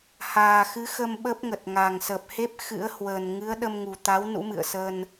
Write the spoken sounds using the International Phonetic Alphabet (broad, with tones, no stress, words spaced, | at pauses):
haː˨˩xɨ˨˦xə˧m ɓə˦˥p̚ŋə˨˩t̚ ŋa˨˩ŋsə˨˩p̚he˦˥p̚ xɨ̰˧˥ə̯hwə˨˩n ŋɨ˨˦ə̯ɗə˧mŋu˨˩t̪a˨˦w nṵ˧˥mɨ̰˧˨ə̯sə˧n